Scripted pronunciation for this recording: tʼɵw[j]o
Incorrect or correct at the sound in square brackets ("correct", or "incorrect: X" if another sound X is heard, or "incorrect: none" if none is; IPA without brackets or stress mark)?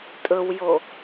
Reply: correct